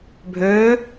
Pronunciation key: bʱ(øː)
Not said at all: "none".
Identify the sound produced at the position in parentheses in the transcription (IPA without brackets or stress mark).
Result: øː